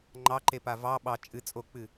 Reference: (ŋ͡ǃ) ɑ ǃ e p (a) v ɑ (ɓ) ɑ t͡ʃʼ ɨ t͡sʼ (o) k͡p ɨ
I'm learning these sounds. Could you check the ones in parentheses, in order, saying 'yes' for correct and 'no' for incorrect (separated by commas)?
yes, yes, yes, yes